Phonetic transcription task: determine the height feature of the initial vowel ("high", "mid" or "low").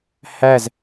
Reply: low